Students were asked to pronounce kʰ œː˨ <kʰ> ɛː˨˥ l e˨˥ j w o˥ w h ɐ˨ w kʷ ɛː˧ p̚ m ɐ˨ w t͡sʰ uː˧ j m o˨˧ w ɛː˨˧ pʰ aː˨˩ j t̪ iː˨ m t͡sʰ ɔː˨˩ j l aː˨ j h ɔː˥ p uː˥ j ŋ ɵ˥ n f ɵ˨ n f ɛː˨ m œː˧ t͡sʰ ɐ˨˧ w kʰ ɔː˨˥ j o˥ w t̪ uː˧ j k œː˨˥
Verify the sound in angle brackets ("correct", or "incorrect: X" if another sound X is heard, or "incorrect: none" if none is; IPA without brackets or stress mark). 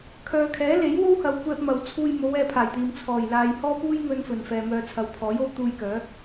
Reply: correct